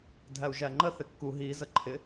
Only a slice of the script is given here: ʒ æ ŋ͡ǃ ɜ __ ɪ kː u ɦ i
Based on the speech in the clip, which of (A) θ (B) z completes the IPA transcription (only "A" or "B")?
A